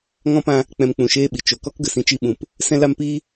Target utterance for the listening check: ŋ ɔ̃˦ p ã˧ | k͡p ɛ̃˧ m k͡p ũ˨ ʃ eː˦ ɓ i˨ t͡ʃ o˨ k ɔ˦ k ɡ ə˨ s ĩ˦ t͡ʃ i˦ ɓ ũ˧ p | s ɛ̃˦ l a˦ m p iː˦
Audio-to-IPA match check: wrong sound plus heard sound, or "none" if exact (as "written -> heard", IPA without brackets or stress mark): none